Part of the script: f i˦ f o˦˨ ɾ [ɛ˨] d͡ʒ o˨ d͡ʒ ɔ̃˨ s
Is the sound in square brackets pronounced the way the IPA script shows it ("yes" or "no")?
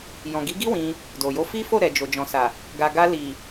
yes